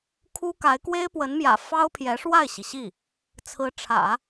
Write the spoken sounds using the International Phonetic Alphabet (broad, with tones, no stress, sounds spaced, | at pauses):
kʰ u˥ k a˧˥ ɪ̯ k w e˥ ɪ̯ p w ə˧˥ n m j ä̰˨˩ f ɑ˥ ʊ̯ pʰ j ɛ˧˥ ʂ w a˥˩ ɪ̯ ɕ i˩ ɕ i˥˩ | t͡sʰ ɹ̩˧˥ ʈ͡ʂʰ ä̰˨˩˦